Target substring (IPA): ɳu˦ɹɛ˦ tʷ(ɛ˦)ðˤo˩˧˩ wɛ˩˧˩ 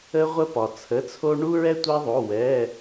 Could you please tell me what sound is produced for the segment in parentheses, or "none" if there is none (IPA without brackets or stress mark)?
ɛ˦